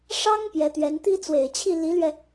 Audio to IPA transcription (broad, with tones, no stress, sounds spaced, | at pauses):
ʂ ɑ˥ ŋ p j ɛ˧˥ t̪ ɥ ɛ˧˥ n t̪ i˥ t͡s w e˨˩ ɪ̯ t͡ɕʰ i˥˩ l i˧˥ l ɥ ɛ˧